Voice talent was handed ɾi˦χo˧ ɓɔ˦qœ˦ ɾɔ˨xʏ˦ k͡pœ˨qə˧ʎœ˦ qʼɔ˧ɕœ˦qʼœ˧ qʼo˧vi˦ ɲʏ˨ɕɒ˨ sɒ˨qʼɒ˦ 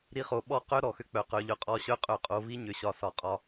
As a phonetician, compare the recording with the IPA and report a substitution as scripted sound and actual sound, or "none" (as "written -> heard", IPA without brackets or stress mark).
ə˧ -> œ˧